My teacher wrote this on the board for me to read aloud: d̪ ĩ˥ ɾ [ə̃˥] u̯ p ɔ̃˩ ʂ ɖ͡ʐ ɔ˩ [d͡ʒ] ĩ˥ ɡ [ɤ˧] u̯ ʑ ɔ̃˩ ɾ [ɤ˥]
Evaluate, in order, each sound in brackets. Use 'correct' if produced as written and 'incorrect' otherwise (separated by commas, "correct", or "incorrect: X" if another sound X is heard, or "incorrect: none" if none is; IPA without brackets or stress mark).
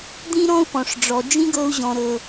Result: incorrect: ɔ̃˥, correct, correct, incorrect: ɤ˩